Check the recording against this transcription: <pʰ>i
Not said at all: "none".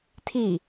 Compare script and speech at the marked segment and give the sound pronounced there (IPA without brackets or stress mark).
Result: tʰ